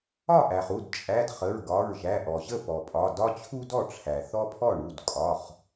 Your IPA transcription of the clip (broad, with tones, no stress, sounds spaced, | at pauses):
ɒ˥˩ ʔ æ˩ χ u˩˧˩ d t͡ʃʼ æ˩˧˩ d χ ə˩˧˩ ɹ ɡ ɒ˩˧˩ ɹ ʒ æ˩˧˩ ʔ ɔ˩ ʑ ə˥˩ p ɔ˩ pʼ ɒ˩˧˩ d ɒ˦ t͡ɕʰ u˦ d ɔ˥˩ ʈ͡ʂʰ æ˩ θ ɔ˦ pʰ ɔ˥˩ ɳ u˩˧˩ d kʼ ɒ˩˧˩ χ